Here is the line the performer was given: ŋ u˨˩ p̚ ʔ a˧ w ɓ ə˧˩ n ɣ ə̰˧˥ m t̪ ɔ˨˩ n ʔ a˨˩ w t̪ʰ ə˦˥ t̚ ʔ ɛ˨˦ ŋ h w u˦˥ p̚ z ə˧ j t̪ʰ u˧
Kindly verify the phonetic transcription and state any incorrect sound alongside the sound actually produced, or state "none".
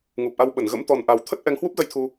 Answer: none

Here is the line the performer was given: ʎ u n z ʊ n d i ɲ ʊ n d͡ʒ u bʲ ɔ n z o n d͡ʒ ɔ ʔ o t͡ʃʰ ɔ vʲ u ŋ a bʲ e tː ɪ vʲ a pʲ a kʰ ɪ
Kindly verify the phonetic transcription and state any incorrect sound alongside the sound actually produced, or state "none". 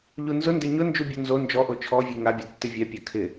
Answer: i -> ɪ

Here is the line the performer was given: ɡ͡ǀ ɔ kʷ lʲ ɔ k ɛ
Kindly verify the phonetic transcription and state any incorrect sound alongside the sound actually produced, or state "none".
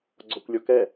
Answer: none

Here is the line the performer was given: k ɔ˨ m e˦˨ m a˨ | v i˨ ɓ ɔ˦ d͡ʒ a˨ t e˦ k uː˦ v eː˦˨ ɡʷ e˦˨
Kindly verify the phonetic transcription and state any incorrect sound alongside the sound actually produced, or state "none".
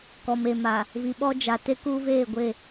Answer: none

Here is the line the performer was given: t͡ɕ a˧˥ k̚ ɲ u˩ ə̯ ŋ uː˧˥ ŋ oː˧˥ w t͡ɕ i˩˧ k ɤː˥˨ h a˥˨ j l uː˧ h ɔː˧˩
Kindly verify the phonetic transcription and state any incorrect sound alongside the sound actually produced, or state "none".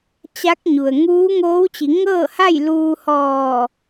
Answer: k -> ŋ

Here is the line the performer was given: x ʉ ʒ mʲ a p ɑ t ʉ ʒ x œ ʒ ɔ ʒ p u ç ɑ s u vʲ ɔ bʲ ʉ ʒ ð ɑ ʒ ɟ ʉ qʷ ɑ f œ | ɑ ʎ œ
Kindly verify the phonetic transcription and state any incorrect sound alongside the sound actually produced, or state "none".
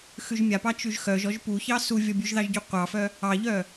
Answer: t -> t͡ʃ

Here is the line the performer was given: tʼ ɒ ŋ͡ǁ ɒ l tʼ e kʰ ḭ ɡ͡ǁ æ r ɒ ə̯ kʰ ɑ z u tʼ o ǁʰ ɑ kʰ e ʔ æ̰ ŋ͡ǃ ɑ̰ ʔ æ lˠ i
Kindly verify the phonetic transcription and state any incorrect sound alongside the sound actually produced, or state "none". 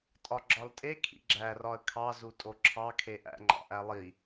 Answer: ŋ͡ǁ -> ɡ͡ǁ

